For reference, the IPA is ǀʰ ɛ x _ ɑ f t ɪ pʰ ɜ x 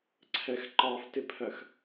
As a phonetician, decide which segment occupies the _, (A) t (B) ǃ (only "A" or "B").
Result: B